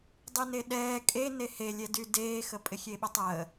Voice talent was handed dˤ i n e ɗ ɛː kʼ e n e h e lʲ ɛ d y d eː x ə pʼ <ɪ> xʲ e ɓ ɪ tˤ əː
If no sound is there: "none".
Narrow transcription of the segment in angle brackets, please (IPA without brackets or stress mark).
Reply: ɪ